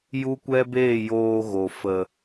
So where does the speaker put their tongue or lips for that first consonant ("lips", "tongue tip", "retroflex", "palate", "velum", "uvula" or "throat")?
palate